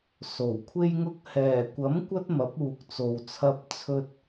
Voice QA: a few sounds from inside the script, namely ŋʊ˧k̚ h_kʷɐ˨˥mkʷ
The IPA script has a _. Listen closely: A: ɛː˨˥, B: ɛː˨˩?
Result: B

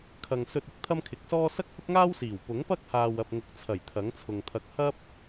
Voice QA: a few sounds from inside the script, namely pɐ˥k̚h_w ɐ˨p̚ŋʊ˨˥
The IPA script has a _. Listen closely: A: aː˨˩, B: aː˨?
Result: B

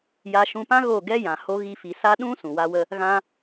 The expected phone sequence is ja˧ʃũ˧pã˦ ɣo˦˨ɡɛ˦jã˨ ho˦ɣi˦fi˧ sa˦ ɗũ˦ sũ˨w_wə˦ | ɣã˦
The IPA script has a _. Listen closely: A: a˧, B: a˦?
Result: B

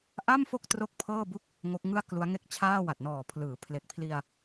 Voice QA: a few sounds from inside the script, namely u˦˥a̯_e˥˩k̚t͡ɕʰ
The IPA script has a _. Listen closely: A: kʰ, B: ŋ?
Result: B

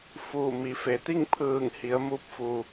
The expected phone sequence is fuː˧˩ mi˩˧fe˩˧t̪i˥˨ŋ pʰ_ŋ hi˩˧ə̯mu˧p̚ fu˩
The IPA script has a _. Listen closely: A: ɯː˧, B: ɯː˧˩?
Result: B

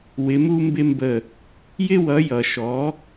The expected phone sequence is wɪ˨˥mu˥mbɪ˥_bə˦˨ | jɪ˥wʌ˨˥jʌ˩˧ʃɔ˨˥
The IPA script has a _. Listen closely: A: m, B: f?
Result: A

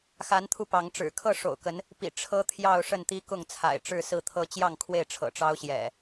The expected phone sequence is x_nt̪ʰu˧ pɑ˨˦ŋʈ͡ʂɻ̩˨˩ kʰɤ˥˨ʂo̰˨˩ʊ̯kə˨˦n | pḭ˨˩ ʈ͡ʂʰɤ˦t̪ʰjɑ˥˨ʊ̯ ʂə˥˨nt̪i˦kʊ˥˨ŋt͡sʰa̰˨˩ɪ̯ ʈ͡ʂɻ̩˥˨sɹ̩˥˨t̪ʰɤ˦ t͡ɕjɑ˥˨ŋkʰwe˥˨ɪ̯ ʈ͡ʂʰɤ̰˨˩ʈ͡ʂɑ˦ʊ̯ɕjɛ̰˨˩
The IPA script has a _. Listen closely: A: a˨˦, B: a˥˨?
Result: A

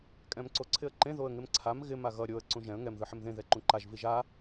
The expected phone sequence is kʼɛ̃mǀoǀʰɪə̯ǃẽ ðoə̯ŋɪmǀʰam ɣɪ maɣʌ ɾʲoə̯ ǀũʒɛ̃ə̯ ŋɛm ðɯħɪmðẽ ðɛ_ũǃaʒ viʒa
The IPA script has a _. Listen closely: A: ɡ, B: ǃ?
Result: B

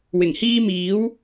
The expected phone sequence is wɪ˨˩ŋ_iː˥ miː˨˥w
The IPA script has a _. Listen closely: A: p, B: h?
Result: B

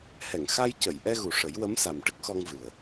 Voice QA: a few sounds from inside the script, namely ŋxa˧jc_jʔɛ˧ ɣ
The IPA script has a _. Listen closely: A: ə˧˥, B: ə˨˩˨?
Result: B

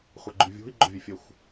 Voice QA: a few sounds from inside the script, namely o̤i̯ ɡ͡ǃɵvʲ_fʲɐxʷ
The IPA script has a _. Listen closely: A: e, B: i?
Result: A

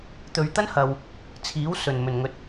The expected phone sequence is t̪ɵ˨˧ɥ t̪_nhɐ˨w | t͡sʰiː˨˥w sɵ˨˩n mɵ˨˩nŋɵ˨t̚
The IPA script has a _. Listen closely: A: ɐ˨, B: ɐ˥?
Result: B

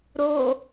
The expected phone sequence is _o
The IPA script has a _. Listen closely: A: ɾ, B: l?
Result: A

